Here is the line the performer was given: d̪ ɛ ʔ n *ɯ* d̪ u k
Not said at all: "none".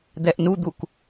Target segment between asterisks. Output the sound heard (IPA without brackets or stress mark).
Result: u